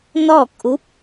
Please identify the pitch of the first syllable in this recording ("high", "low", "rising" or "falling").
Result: falling